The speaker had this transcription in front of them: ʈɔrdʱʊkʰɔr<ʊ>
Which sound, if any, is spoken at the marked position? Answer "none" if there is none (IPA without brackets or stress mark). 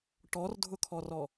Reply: ɔ